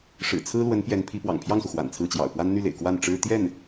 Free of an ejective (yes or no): yes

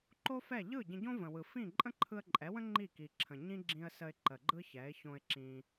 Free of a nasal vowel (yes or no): no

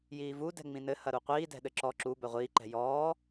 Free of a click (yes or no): no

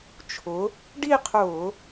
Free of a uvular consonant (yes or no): no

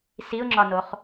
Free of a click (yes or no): no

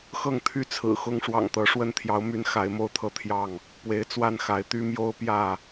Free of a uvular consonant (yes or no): yes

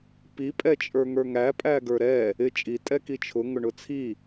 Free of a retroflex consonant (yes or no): no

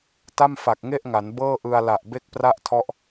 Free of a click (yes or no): yes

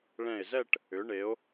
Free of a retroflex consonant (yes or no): no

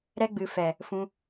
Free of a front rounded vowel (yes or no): yes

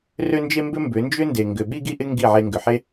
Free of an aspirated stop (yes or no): yes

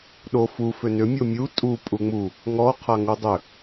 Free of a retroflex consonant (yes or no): yes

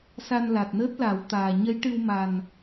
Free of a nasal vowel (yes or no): yes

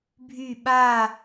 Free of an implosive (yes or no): no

